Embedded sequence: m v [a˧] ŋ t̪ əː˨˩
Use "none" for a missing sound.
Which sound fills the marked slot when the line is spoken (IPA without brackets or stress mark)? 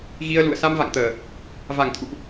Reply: a̰˧˨